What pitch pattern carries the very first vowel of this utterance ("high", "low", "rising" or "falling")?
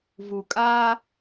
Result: low